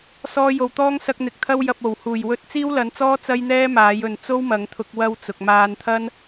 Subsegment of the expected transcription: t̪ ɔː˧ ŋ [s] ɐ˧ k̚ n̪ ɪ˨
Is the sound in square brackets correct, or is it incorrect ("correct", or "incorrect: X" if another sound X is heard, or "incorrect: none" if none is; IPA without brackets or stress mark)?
correct